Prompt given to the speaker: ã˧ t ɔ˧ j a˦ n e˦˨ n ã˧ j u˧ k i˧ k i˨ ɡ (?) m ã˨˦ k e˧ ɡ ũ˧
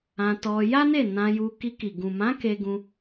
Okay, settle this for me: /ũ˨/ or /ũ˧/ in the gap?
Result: ũ˨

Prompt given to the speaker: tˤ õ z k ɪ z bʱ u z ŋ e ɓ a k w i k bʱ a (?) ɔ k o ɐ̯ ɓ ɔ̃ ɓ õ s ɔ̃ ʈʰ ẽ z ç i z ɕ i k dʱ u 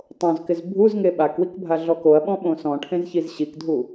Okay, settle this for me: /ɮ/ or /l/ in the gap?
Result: ɮ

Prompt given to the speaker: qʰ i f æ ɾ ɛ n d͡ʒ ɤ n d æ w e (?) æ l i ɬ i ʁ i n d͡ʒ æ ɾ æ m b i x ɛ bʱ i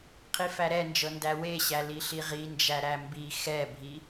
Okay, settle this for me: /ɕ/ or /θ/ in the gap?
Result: ɕ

